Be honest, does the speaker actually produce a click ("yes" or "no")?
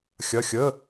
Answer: no